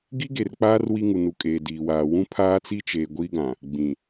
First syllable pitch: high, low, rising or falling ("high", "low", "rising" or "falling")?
high